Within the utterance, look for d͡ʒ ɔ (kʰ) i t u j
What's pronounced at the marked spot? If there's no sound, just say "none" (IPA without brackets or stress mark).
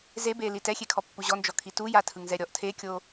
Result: kʰ